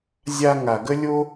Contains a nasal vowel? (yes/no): no